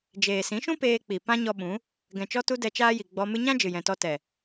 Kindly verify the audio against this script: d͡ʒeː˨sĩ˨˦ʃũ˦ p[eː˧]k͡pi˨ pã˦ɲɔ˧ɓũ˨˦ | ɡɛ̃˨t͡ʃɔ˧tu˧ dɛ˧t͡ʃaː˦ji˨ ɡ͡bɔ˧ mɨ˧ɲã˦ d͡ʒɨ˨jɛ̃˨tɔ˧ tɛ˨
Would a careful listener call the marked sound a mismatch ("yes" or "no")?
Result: no